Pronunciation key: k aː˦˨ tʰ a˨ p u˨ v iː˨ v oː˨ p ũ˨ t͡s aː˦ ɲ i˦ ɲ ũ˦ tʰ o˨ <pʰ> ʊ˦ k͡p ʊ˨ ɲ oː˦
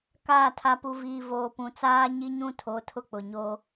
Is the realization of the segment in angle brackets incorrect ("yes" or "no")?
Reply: yes